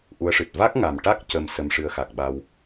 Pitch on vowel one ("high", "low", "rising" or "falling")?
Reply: rising